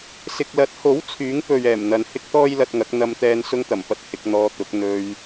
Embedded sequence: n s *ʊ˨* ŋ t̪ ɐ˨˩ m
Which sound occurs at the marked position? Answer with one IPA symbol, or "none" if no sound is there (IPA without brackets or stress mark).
ʊ˥